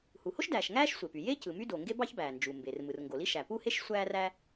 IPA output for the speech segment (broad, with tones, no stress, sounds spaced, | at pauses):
h u˩ h o˥ ʃ d æː˩ ʃ ŋ æː˥ ʃ sʷ e˩ p y˩ j e˥ c ɯ˩ m y˥ d o˩ ŋ ɡ e˥ b ɑ˥ ç b æː˩ n d͡ʒ u˩ m b e˩ r m ɯ˩ r ŋ ɡ o˩ l i˥ ʃ æ˩ p u˥ h e˥ ʃ sʷ æː˥ r æ˥